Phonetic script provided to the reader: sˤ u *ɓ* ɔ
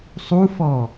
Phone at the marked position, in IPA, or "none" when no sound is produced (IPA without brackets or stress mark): f